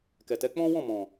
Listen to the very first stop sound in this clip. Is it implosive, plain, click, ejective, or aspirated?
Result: plain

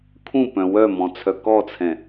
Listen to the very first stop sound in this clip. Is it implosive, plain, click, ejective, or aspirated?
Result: aspirated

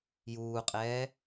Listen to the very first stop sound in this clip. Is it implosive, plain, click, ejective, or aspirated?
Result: ejective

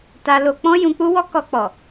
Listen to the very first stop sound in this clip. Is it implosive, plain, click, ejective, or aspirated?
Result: plain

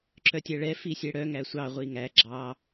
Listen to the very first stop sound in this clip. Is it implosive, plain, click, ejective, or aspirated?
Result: click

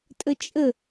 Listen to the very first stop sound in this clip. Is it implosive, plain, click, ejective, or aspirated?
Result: ejective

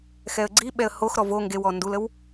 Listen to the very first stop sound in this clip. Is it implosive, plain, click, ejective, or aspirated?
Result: click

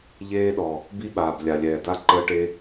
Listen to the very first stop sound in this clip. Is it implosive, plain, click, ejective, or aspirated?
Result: implosive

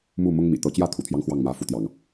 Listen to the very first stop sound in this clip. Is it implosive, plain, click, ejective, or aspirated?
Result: plain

